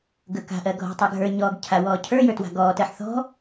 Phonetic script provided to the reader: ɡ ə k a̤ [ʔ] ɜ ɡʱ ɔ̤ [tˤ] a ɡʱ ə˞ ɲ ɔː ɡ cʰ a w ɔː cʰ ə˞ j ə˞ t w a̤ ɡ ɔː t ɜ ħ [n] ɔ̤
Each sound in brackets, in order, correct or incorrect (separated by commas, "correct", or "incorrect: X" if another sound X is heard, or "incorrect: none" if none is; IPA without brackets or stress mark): correct, correct, incorrect: θ